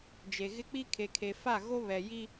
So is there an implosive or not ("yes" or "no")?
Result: no